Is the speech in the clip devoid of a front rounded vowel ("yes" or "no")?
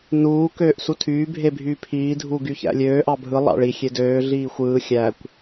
no